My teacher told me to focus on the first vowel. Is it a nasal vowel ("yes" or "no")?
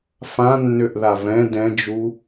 yes